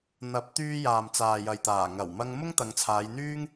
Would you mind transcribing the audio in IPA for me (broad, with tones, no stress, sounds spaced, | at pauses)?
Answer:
n̪ ɐ˨˥ p̚ t̪ yː˧ j aː˨ m t͡s aː˨ j ɐ˨ j t̪ aː˨˩ ŋ ɐ˨˩ w m ɐ˧ ŋ m ʊ˥ ŋ t̪ ɐ˨˧ ŋ t͡sʰ aː˨˧ j n̪ yː˥ ŋ